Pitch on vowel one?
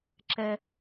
high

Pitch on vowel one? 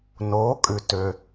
rising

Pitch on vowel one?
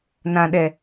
low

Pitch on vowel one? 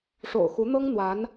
low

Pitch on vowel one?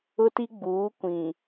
high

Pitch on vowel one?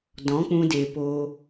rising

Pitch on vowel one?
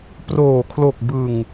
low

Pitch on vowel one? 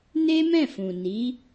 high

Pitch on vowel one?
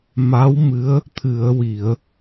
rising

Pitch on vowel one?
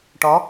rising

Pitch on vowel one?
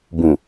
low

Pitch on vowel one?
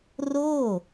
falling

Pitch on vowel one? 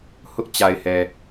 high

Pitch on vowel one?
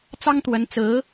high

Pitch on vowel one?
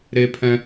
high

